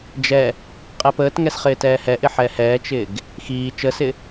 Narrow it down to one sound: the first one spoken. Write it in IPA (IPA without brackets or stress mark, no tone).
d͡ʒ